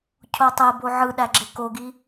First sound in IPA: cʰ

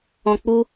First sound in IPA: ɔ̃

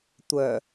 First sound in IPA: tʷ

